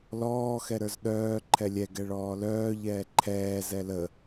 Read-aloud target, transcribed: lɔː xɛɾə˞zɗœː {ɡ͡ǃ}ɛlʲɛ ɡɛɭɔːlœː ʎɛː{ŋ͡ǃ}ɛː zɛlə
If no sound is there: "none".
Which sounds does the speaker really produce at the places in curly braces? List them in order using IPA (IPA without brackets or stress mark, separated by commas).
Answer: ǃʰ, ǃʰ